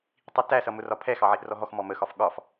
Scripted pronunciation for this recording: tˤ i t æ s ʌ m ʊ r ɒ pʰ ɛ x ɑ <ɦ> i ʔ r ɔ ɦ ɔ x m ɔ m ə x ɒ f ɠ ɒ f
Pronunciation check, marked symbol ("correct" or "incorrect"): incorrect